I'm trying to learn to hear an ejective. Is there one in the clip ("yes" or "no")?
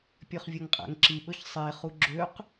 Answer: yes